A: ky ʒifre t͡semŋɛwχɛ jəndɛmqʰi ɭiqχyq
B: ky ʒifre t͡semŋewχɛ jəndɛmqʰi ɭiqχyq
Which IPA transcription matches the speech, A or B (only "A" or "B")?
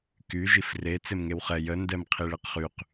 B